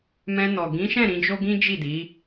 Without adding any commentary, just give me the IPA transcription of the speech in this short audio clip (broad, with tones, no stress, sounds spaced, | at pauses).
m ɛ̃˧ n ɔ˨ ɡ ĩ˨˦ ʃ ɛ̃˦˨ ɾ ĩ˨˦ d͡ʒ o˦ ɡ ĩ˦ d͡ʒ i˦˨ d i˨˦